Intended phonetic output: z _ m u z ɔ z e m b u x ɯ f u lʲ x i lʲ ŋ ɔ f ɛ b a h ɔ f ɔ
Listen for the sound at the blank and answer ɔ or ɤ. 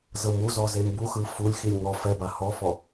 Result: ɤ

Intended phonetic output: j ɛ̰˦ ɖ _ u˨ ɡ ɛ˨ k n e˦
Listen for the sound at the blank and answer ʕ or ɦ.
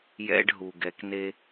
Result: ɦ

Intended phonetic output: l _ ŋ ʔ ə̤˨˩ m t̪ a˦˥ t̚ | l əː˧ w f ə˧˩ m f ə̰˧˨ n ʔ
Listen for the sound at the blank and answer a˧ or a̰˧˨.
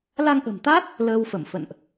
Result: a˧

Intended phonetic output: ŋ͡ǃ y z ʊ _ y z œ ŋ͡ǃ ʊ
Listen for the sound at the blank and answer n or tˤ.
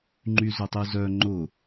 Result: tˤ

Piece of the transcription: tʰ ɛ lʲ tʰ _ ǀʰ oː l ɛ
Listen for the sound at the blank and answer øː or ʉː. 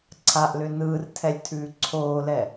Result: ʉː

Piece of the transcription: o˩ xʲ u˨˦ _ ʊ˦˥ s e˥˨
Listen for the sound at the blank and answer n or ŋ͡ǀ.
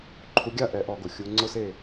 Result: ŋ͡ǀ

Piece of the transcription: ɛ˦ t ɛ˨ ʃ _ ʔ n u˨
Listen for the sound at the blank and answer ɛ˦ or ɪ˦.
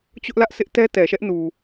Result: ɛ˦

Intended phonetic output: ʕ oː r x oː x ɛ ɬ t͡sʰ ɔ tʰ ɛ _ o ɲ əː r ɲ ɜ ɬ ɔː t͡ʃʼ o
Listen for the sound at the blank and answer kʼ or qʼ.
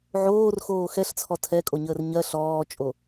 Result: kʼ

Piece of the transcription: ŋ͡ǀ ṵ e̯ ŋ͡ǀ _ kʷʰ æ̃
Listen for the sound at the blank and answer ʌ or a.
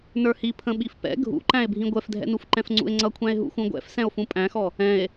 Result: ʌ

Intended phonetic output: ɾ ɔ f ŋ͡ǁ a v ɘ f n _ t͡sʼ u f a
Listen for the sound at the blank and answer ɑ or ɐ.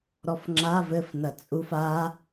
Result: ɐ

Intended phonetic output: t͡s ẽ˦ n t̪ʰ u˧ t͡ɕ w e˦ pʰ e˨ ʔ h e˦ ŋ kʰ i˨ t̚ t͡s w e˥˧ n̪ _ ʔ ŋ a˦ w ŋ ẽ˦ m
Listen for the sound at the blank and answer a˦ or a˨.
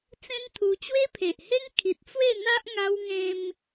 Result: a˦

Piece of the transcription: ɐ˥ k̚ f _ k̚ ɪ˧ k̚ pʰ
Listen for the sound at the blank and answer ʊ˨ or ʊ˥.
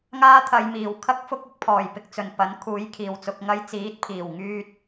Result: ʊ˥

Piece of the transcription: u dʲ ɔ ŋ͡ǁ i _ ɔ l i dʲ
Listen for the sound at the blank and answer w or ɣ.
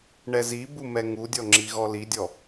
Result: ɣ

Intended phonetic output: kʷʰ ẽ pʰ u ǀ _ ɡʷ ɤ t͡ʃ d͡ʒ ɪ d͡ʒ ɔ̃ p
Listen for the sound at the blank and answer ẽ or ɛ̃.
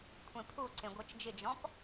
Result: ẽ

